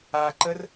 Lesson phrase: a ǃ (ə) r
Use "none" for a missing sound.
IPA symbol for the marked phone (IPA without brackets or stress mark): ə